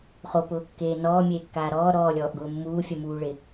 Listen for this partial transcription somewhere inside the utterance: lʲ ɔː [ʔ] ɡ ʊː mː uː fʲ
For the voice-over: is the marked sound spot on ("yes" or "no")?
yes